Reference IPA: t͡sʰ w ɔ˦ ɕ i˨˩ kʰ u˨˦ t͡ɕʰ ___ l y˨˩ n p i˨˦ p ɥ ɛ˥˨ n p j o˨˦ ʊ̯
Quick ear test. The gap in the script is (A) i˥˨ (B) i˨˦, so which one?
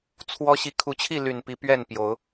A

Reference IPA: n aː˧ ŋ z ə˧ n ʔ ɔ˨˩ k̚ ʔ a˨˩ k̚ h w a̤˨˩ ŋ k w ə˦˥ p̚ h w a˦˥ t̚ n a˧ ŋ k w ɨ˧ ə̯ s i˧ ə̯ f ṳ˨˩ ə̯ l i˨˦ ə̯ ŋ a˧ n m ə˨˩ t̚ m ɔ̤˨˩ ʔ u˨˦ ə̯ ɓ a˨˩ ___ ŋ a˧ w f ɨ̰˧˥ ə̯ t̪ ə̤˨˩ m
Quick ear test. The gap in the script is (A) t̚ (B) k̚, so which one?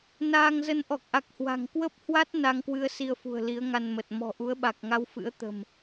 B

